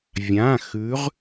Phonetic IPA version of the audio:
vʲã˩˧˩ xʉ˨˦ʁ

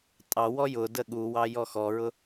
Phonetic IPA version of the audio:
tʼɑwɔ jʊ dəɠuwɑ jɔxɔɹʊ

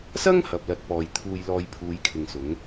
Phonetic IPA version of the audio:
sɐ˥ŋ hɐ˨p̚lɐ˧t̚pɔː˨j t̪ʰuː˧jlɔː˧j pʰuː˨˧jkʰɪ˨ŋsʊ˨˥ŋ

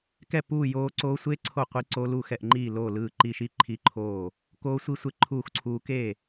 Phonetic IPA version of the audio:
kɛ˥˨ puː˥˨ joː˦˥ǀoː˦˥ sʷe˦˥ ǀʰo˥˨qʷi˦˥ ǀo˦˥lu˥˨ xɛ˥˨ʔŋ͡ǃiː˥˨loː˥˨lɯː˥˨ ǃi˦˥ʃi˦˥ ǃʰi˥˨ǃʰoː˥˨ | koː˦˥sʷi˦˥sʷe˦˥ ǃʰuː˥˨xǀʰuː˦˥ keː˥˨

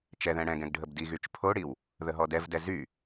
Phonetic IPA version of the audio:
t͡ʃɛðɛ̃ ɽɛ̃ɡ ɛ̃ɡɖʱəbdiɣyt͡ʃ pʰoɽiw | ðəɦɔdɛvdɛ zy

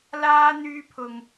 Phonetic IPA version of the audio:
laː˧ n̪yː˧pʰʊ˨ŋ

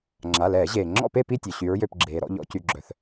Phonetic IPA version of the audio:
ŋ͡ǁa˩˧˩lɛː˧˩˧ ʑeː˩ ŋ͡ǁɔ̰˥˨pe˥˨pi˥˨tʲœ˩ ɕy˩˧ɹjø˩˧˩pɡ͡ǁeː˩ɾɔ̰˥˨ ʎɔ̰˧˩˧cy˩˧˩ɡ͡ǁœ˩θ

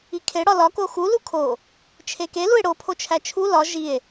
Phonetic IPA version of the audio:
ikʰe ɽɒlɒ koxu lukʰo | t͡ʃʰeke lue̯ɽo pʰot͡ʃʰæt͡ʃʰu lɒ ʒie̯

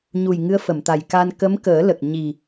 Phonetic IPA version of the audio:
ɲu˨˩j ŋɨ˧˥ə̯fə˨˩˨mt̪a˨˩jka˧n kə˧˥mkəː˨˩˦ lə˨˩k̚ɲi˨˩

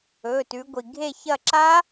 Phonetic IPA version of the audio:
ɵ˩˧˩tʉ˩˧ɡʷi˩ ɡʱe˦˨çɐ˦˨ ǁa˦˥

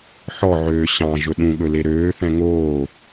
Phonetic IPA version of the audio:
ħɔʕøː ɕɑ̃ ʒɵɗũɠɵ leɾøːθɛ̃ ŋoː

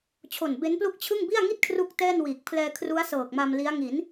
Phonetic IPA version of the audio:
t͡ɕʰo˨˩nbe˦˥nplu˥˩k̚ t͡ɕʰɯ˥˩ŋ bi˥˩a̯ŋi˥˩t̚ kʰru˥˩k̚tɛː˥˩nwiː˨˩k̚ pʰlɛː˧kʰru˦˥a̯ sɤː˨˩k̚ma˧mli˦˥a̯ ŋi˩˦n

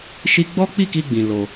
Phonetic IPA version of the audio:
ʃi˦ ɡ͡bɔ˦k͡pi˦˨ki˧ɡ͡bĩ˨ lo˧

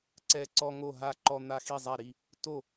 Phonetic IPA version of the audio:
ǀɛ˦ǀɔ˦ŋo˥˨ɦa˥˨ ǃɔ˦ n̪a˦ xi˥˨zˤa˥˨ɾi˥˨ | to˥˨

